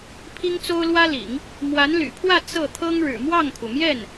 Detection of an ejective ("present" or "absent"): absent